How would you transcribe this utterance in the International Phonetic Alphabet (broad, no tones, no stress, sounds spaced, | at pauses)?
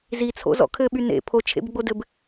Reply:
z i t͡sʰ o̰ z ɔ̰ kʰ ɘ ɓ y n ḛ pʰ o t͡ʃʰ ḛ b ɡ͡b o d ɘ b